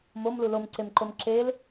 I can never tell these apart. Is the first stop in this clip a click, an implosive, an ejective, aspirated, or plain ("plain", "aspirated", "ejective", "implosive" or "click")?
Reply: click